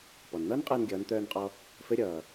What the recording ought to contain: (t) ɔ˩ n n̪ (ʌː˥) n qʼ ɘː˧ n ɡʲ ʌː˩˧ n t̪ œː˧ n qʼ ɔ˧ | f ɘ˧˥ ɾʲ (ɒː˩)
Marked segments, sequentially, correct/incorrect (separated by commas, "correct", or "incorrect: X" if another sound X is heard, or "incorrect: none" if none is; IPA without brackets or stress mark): incorrect: p, correct, incorrect: ʌː˩